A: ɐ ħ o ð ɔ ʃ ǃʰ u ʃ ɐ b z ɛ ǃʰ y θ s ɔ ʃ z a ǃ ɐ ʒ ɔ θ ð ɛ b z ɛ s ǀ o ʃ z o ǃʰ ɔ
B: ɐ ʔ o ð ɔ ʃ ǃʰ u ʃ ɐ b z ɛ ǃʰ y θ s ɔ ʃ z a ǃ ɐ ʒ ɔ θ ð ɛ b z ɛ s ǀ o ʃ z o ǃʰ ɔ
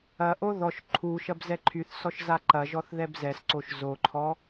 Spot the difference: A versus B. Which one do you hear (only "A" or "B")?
B